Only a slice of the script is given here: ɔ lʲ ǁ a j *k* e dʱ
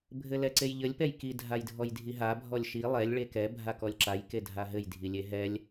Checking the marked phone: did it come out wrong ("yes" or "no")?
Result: no